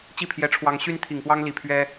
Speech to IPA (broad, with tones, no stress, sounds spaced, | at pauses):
t͡ɕ i˥˩ pʰ j ɛ˧˥ ʈ͡ʂʰ w ɑ˧˥ ŋ ɕ y˥ n t̪ʰ i˨˩ ŋ p w ɑ˥ ŋ l i˨˩ pʰ ɥ ɛ˥